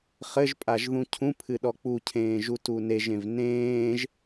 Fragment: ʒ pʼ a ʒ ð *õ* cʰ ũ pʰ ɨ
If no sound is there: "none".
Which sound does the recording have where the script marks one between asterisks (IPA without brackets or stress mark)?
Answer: ũ